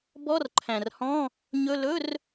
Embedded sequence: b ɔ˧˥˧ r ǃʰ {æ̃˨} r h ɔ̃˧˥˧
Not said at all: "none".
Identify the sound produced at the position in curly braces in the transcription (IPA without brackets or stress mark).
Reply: æ̃˨